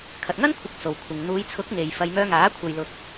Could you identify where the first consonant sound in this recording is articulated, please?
velar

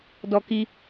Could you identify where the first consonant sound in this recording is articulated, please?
alveolar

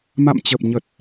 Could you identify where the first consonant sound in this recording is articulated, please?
labial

